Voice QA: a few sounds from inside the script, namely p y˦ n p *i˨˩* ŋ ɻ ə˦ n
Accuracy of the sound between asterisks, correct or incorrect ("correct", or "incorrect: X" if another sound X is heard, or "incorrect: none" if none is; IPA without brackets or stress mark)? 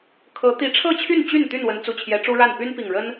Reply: correct